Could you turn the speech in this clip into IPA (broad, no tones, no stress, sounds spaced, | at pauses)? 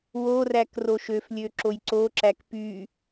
w o r æ k r o ʃ ø f lʲ ø ǁ o j ǀ o ǁ æ k p y